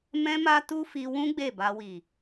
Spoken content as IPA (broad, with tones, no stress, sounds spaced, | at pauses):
m ɛ̃˧ m a˧ t u˦ f i˧ w ũ˦ ɡ͡b e˦˨ b a˧ w i˨